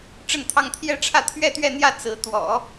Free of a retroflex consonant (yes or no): no